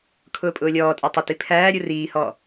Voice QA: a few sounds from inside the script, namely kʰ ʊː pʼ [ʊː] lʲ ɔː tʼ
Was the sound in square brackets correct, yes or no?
yes